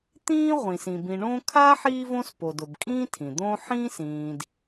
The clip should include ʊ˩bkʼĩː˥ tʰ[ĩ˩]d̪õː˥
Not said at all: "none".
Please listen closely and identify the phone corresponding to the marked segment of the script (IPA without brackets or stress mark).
ĩ˩